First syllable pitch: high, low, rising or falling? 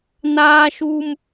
high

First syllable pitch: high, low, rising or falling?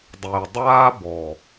low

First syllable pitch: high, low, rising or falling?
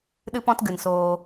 high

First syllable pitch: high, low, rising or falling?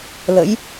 rising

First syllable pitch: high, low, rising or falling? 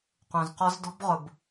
low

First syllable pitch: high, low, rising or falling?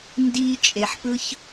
high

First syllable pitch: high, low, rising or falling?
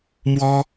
high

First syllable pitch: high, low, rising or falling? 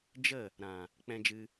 falling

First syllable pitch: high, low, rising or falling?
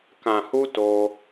low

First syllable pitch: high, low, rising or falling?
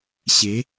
rising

